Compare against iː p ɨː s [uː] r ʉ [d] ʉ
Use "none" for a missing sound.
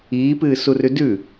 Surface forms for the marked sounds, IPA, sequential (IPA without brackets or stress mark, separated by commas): u, d